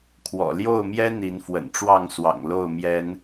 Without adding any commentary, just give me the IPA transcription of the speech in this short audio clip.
kʰwɔ̰˨˩ljo˥˨ʊ̯mjɛ˦ n̪i˨˦nfwə̰˨˩nʈ͡ʂwɑ˥˨ŋswɑ̰˨˩ŋ lo˥˨ʊ̯ mjɛ˨˦n

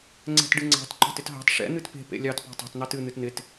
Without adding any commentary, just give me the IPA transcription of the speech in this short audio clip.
ŋ͡ǀɛ̤tɖɨŋ͡ǀɑ̤t ǃɑ̤tɪtɦɑ̤t ʂɛ̰ n̪ɨtpe̤ pḛlʲɑt pɑ̤tˤe̤t n̪ɑtɨ n̪ɨtn̪ɪt

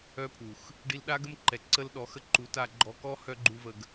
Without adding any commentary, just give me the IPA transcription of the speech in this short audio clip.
œ˦pʰu˨x | ɖi˧lɗa˦ɡə˦mǃɛ˨ ǀə˦lɗɔ˨˦xə˦ ǃu˨˦ta˧ɡ͡ǃɔ˧ kɔ˦ hœ˦ɡ͡ǃu˦və˧ɡ

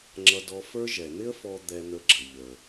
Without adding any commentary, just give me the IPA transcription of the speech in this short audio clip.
ŋ͡ǁʌ˧dɔ˧fə˞˥ ʒɛ˩n̪ɪ˥ə̯fɔ˧ d̪ɛ˧n̪ə˧ɡ͡ǁə˩ ʎəː˩

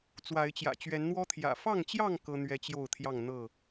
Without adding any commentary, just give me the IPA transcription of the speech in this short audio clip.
t͡swa˨˦ɪ̯t͡ɕjä̰˨˩ t͡ɕɥɛ˨˦nn̪wɔ˦t̪ʰjä̰˨˩ fɑ˥˨ŋt͡ɕjɑ˥˨ŋ kɤ˦n̪ɥɛ˦t͡ɕjo˥˨ʊ̯t̪ʰjɑ˥˨ŋ n̪ɤ˥˨

